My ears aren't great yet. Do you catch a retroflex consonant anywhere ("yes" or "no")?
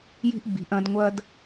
no